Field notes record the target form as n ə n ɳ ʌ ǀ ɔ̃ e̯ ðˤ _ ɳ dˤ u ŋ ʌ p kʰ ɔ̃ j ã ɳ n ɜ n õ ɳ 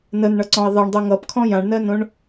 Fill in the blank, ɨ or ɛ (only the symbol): ɛ